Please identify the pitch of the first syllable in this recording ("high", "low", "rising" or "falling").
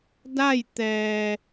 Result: falling